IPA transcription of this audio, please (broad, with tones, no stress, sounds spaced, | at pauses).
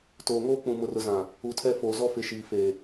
t oː˨ ŋ oː˦ k͡p ũ˨ m ʊ˨ r ʊ˨ z ã˨ | u˨ tʰ ɛ˦ f oː˨ z ɔ˦ f ɪ˨˦ ʃ iː˨ f eː˨